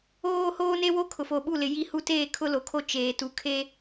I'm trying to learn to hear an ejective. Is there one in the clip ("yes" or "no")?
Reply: no